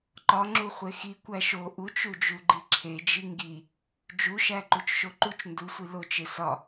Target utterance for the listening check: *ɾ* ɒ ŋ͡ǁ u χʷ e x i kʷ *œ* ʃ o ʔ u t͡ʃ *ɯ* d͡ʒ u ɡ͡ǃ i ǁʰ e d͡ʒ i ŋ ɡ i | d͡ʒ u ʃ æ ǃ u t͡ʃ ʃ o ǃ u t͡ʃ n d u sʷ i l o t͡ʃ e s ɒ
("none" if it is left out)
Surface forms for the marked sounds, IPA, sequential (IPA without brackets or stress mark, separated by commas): ǃ, æ, u